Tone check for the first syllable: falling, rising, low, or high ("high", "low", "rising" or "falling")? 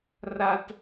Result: high